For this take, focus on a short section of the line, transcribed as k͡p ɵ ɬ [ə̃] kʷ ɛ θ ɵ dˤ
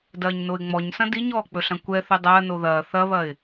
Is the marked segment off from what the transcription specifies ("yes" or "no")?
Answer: yes